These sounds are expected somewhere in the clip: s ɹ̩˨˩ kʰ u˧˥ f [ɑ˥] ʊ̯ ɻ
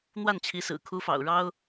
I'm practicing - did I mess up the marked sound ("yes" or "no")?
yes